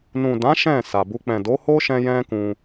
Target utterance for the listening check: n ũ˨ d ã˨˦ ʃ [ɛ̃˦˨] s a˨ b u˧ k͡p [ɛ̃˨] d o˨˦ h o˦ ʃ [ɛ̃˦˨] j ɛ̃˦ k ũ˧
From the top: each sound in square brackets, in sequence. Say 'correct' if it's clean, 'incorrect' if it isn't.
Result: correct, correct, incorrect

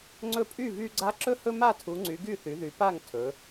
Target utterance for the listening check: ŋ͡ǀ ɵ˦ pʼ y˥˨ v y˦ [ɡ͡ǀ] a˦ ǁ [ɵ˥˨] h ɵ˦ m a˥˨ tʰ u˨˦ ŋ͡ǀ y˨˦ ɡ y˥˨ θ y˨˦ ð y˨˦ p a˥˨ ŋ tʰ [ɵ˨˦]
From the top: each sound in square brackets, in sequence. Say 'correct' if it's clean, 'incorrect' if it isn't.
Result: correct, correct, correct

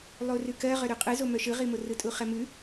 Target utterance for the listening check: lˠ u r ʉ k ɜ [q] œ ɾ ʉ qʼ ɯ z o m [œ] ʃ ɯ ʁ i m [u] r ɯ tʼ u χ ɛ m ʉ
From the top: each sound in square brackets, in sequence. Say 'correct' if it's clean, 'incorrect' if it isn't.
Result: incorrect, correct, incorrect

